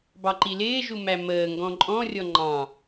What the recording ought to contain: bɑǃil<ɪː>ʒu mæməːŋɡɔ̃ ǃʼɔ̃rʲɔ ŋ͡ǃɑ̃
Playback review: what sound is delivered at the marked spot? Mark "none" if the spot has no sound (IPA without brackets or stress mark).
ɪː